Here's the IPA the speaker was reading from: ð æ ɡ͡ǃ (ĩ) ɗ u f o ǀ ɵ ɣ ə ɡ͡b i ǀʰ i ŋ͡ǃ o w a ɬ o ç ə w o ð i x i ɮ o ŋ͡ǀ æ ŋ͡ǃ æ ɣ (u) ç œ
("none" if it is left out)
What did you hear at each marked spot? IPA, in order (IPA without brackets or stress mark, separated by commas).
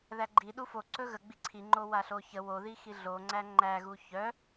i, u